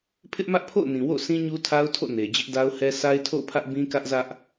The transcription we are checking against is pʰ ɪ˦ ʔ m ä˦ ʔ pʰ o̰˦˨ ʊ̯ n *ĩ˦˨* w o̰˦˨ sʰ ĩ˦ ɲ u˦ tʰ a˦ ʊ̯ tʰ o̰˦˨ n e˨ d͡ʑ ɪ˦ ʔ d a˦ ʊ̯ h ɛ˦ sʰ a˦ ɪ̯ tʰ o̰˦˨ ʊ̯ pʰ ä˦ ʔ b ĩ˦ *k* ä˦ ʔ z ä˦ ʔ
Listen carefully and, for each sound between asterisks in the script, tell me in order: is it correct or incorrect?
incorrect: ĩ˨, correct

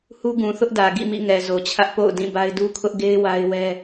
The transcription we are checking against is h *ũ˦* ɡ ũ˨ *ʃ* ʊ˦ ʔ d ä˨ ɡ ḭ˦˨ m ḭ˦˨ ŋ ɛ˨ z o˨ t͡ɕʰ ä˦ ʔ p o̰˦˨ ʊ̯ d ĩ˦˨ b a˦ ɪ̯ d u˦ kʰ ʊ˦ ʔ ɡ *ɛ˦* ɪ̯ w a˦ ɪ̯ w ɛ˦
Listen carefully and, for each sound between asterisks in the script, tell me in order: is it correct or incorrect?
incorrect: u˦, incorrect: θ, incorrect: e˦

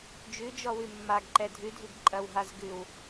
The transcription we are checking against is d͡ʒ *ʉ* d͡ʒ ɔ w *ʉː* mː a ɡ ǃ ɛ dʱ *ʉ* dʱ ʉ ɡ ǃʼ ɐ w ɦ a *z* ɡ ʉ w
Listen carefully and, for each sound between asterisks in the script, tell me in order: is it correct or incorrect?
correct, incorrect: ʉ, correct, correct

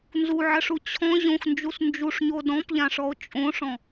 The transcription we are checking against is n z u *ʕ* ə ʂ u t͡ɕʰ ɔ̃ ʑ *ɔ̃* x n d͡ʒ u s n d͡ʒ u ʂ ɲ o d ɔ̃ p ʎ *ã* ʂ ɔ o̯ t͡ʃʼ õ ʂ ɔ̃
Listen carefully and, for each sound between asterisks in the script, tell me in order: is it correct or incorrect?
correct, incorrect: õ, correct

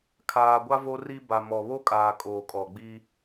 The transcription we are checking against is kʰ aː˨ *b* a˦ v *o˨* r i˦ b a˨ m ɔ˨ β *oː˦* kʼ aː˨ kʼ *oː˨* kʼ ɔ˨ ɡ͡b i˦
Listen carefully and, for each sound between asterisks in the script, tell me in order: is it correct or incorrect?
incorrect: ɡʷ, incorrect: o˦, incorrect: o˦, correct

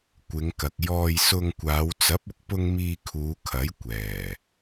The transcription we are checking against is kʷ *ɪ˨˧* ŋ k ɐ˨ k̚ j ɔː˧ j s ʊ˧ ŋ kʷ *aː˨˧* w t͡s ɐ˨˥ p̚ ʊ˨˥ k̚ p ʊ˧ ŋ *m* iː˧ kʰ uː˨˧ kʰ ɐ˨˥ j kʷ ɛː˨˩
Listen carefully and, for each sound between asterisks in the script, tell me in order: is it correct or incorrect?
correct, correct, correct

